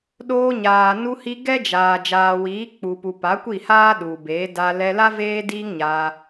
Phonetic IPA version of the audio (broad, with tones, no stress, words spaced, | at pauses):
ɗoː˧ɲaː˨ nu˧hi˧ ɡɛ˦d͡ʒaː˨ d͡ʒaː˨wiː˨˦k͡pu˨pu˨ pa˨˦kʷi˦˨haː˦ ɗu˨beː˨˦ da˧ lɛ˧la˦ veː˦diː˦ŋ ɲaː˧